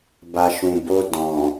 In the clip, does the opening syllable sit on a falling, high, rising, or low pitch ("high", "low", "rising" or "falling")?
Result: low